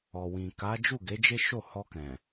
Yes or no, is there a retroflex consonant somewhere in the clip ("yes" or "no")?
no